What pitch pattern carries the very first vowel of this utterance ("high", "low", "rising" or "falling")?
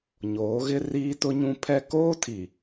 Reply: rising